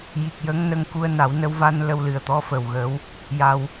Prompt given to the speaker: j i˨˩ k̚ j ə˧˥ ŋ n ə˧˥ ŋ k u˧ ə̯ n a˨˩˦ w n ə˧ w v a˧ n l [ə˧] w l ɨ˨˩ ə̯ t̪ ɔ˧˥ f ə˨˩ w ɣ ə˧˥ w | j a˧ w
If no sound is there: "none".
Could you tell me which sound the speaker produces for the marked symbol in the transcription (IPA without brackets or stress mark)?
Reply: ə˧